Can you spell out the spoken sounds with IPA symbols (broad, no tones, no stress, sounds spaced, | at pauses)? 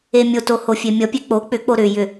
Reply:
e mʲ o t o h o fʲ e mʲ ʌ pʲ e k͡p o k͡p ʏ k͡p o ɾ ʏ j ʏ